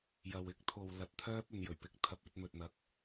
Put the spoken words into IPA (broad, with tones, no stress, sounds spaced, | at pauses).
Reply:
j ɐ˨ w ɪ˥ k̚ t̪ʰ o˨ w l ɐ˨ t̚ t̪ʰ œː˥ p̚ ɵ˨ n j ɵ˨˩ ɥ p ɪ˨ k̚ t̪ʰ ɐ˧ p̚ ɵ˨˥ t̚ m ɵ˨ t̚ n̪ ɐ˨˥ k̚